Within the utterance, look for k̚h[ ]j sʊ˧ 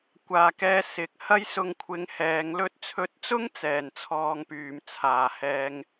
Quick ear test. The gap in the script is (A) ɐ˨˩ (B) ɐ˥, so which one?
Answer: B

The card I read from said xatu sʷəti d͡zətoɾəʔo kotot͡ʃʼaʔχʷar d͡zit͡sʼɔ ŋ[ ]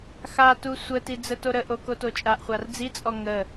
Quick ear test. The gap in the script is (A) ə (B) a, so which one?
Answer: A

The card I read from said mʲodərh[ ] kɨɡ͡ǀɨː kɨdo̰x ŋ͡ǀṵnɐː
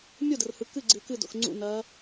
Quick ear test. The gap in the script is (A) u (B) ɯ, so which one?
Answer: B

